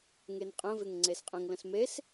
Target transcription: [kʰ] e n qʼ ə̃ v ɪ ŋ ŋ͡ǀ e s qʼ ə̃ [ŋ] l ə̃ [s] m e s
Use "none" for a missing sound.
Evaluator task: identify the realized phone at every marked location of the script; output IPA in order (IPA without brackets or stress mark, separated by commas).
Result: ŋ, ŋ, s